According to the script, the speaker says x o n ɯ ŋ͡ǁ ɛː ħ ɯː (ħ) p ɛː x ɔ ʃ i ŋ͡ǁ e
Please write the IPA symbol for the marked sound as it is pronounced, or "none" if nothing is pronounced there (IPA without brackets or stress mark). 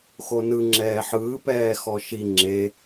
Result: none